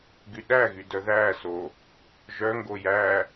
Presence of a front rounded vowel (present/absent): present